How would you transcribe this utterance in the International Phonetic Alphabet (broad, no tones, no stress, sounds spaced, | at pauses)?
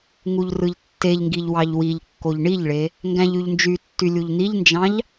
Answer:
ŋ u ʎ r ɯ ʎ tː e ʎ ŋ ɡ i ʎ w ɑ ʎ w i ʎ kː o ʎ ɳ i ʎ ɭ e | ŋ ɡ æ̃ ʎ y ʎ n d͡ʒ y tː y lʲ u ʎ n̪ i ʎ n d͡ʒ ɑ̃ ʎ